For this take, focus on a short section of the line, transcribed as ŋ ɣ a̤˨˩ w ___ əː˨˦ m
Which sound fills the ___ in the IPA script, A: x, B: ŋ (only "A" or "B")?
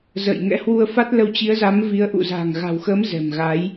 A